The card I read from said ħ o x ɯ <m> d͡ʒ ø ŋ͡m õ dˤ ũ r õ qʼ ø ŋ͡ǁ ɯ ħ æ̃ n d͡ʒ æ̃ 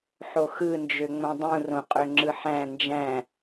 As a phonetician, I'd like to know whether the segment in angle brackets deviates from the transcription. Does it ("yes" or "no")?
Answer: yes